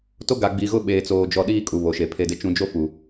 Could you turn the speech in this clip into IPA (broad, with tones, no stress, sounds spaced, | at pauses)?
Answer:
t o˦ ɡ a˨ ɡ͡b i˨ ɣ ʊ˦ ɓ eː˨ t͡s oː˨ d͡ʒ ɔ˨ ɗ iː˦ kʼ u˨ β o˨ ʃ e˨ pʰ e˨ d ɪ˨ t͡ʃ ũ˨ d͡ʒ o˦ f u˨